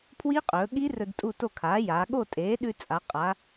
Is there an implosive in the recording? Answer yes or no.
yes